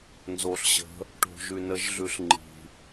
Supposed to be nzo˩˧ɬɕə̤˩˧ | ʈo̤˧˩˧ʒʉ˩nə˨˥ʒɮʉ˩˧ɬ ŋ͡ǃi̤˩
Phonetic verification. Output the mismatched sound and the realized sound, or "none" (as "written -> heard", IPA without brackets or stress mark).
none